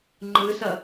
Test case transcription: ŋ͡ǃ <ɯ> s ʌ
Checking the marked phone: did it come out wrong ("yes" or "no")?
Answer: no